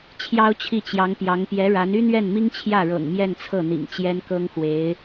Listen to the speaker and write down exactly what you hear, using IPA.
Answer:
t͡ɕʰjɑ˥ʊ̯t͡ɕʰi˥˩t͡ɕjɑ˧˥ŋpjɑ˧˥ŋ pjɛ˧˥ɻa˧˥n y˥n̪ɥɛ˥˩nmi˥ŋ t͡ɕʰjä˥˩ɻɤ̰˨˩ŋ mjɛ˥˧nt͡sʰɤ˥˩n̪ḭ˨˩ŋ t͡ɕjɛ˥nkɤ˥ŋxwe˧˥ɪ̯

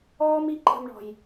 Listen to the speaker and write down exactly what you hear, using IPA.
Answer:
ɔː˦mi˧ ǃə̤˧mɳɔ̤˨j

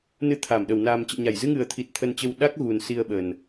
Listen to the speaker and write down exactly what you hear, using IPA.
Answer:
nɨ˧t̪ʰa˧˩m ɗə˧˩wnaː˨˩mt͡ɕə̰ː˧˨ɲa˧˩j zɨ˧ŋɨ˨˩ə̯t̪ʰi˨˩t̚ t̪ʰə˧nt͡ɕə˧w ɗa˦˥k̚ɣu˨˩n si˧ə̯ɓə˨˩n

